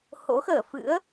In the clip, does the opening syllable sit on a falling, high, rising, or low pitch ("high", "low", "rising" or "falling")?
rising